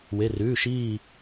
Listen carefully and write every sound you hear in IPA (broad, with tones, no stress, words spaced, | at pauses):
we˩˧˩rʉː˩˧˩ ʃiː˦˨